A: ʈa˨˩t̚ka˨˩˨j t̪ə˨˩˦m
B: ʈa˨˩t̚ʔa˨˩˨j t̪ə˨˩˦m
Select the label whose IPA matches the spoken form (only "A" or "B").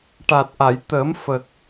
B